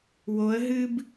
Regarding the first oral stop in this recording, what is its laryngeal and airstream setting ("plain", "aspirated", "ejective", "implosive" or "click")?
plain